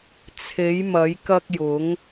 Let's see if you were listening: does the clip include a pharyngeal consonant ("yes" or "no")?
no